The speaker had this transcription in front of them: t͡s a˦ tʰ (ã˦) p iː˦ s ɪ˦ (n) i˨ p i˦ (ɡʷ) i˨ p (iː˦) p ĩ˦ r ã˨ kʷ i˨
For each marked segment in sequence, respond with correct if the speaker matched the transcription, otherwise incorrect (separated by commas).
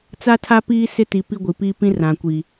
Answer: incorrect, incorrect, correct, correct